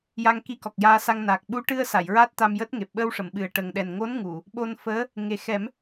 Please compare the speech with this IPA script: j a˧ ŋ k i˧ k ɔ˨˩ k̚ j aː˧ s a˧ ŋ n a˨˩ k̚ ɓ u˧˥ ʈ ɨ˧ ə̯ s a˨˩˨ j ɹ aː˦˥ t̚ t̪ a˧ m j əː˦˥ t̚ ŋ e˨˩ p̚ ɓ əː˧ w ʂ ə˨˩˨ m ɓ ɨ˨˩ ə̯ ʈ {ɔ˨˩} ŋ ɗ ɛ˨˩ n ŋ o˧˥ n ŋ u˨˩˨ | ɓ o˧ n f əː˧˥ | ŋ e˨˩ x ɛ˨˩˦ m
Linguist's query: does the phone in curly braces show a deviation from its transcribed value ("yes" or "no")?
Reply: yes